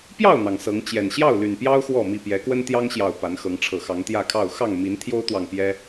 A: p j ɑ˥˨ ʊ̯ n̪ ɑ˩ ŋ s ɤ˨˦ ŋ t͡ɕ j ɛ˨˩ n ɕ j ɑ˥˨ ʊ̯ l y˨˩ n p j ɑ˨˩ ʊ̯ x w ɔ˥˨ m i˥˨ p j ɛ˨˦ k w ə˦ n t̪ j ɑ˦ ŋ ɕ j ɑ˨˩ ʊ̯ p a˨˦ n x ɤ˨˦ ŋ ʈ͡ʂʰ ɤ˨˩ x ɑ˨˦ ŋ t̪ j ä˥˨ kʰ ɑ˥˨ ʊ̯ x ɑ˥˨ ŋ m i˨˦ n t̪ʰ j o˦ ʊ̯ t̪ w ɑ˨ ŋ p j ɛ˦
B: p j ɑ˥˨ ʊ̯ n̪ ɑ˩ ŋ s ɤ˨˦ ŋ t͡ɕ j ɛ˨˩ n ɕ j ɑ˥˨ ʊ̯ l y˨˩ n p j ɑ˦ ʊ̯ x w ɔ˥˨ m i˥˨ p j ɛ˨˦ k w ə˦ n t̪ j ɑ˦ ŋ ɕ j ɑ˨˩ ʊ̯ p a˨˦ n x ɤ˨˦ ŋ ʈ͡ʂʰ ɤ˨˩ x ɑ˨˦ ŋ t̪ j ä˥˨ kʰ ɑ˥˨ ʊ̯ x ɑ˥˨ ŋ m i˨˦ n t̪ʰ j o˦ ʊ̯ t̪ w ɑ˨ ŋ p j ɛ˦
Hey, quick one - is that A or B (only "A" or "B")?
B